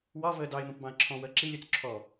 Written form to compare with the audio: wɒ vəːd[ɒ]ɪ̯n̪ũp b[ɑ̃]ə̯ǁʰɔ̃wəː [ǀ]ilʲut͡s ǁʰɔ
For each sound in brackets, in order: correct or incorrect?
incorrect: ɑ, correct, incorrect: ǁ

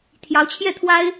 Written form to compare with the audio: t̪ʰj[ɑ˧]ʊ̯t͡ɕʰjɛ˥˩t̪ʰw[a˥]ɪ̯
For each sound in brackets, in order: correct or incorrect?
incorrect: ɑ˧˥, correct

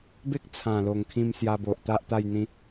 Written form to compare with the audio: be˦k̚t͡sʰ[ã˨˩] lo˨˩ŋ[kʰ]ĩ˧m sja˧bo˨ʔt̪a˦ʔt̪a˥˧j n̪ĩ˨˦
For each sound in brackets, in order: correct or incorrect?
correct, correct

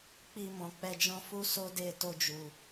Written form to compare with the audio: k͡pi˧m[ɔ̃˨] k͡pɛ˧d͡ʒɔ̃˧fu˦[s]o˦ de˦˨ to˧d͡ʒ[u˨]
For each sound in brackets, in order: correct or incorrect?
correct, correct, correct

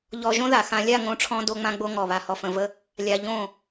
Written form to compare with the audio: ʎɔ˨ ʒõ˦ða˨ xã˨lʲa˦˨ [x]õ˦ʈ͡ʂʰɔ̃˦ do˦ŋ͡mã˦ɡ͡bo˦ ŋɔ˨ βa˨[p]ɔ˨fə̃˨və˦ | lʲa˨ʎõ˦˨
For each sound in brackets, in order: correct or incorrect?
incorrect: ŋ, incorrect: h

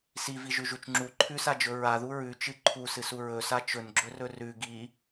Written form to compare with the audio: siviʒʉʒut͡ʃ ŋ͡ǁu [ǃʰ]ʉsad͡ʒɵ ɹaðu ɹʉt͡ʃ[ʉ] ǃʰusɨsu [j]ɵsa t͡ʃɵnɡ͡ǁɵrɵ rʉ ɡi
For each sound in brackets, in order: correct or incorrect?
correct, incorrect: ɨ, incorrect: ɹ

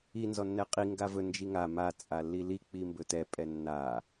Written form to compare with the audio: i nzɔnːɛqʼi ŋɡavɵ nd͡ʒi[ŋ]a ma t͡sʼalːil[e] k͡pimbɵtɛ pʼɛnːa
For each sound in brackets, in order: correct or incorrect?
correct, incorrect: i

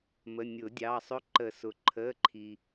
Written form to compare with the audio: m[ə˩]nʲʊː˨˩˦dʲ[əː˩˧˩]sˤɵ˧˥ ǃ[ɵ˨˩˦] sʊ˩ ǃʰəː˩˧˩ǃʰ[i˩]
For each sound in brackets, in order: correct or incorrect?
incorrect: ə˩˧˩, incorrect: ɑː˩˧˩, incorrect: ə˨˩˦, correct

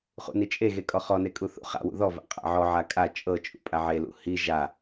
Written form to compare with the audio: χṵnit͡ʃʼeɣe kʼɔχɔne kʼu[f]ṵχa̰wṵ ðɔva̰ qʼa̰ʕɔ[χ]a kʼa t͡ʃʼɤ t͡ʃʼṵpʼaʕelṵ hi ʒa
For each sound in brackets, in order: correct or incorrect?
incorrect: θ, incorrect: ʕ

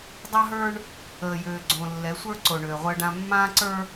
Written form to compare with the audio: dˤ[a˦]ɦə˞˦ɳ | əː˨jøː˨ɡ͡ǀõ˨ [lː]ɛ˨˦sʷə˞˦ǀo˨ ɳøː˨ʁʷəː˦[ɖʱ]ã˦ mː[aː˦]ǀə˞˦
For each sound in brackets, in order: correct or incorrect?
correct, correct, incorrect: ɖ, incorrect: ãː˦

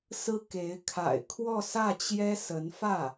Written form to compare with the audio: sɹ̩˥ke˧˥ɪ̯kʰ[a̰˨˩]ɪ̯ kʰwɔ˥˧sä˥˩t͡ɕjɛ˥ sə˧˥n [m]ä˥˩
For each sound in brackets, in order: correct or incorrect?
correct, incorrect: f

